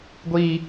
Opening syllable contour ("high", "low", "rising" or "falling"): high